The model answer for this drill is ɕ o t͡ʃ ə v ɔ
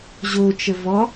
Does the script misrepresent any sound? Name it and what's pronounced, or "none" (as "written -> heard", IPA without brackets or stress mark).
ɕ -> ʑ